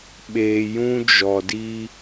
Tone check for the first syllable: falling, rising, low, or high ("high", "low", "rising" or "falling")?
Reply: low